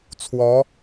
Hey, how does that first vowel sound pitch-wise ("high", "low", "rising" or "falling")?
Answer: rising